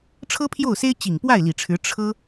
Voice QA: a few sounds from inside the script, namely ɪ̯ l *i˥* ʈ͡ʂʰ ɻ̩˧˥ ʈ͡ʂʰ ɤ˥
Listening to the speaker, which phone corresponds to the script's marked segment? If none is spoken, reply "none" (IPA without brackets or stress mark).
i˨˩